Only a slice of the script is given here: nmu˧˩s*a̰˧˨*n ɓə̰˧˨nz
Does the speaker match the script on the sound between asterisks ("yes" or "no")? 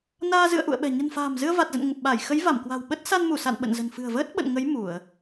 yes